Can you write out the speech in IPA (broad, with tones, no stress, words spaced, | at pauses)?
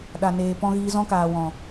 ɗa˨neː˨pɔ̃˧ ɣiː˧zɔ̃˦kaː˨ wɔ̃˨